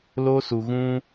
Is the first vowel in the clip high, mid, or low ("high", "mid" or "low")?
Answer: mid